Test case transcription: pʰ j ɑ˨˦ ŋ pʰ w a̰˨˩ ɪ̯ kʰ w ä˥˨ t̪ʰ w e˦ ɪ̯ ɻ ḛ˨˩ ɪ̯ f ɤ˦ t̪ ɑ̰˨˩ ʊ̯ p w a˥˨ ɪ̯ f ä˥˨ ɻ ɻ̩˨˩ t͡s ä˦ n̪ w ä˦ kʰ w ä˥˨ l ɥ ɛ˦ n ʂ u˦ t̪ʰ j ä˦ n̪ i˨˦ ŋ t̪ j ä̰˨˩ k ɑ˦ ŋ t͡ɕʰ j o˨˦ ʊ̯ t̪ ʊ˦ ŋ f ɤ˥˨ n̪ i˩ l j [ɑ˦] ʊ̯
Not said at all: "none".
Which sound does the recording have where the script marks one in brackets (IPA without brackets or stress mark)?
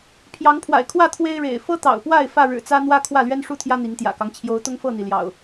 ɑ̰˨˩